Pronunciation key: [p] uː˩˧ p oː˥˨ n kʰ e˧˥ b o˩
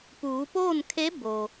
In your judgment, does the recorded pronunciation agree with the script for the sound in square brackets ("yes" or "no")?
yes